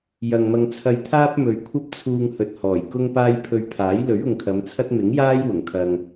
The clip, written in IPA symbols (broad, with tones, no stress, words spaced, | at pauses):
jɐ˨ŋmɐ˧ŋt͡sʰɐ˧j t̪ʰaː˥p̚mɵ˨ɥ kʷʰɐ˥p̚t͡sʰuː˧ŋhɵ˨t̚ hɔː˨˩jkʊ˥ŋpaː˥j pʰɵ˧ɥpʰaː˨˥j lɵ˨˥ɥʊ˨ŋkʰɐ˨˧mt͡sʰɐ˥t̚ mɪ˨˥ŋjaː˥j wʊ˨˩ŋt̪ʰɐ˧ŋ